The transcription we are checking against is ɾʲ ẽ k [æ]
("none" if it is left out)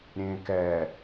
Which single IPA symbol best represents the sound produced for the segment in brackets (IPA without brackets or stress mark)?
ɛ